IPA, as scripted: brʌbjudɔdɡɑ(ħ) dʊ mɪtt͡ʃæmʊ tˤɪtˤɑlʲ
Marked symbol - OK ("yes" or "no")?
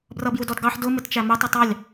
yes